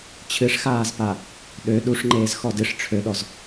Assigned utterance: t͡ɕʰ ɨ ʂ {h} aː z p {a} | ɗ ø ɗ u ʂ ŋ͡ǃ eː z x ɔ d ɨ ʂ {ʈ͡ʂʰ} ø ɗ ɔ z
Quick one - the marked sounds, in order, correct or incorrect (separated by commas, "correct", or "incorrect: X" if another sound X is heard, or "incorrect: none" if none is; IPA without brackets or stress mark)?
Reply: incorrect: x, correct, correct